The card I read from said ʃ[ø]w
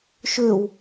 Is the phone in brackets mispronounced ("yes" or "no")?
no